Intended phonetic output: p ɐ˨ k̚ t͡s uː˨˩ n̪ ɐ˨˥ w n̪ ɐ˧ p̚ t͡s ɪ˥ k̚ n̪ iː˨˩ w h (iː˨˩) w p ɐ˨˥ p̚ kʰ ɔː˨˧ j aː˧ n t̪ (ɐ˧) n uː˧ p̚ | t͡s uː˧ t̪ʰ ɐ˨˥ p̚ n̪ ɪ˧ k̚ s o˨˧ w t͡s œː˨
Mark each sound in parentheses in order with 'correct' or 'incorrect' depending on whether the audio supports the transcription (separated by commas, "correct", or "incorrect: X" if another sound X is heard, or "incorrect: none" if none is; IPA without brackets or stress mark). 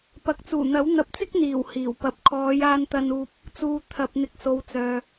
correct, correct